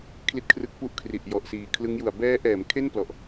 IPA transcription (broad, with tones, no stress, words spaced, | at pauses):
kʰli˦˥t̚kʰrɯ˦˥k̚pu˦˥ʔ kʰri˨˩ʔjɔ˨˩ʔsiː˨˩ kʰlɯ˦˥ŋju˨˩a̯ bɛː˦˥ʔɛː˩˦m kʰe˥˩nplɔ˨˩ʔ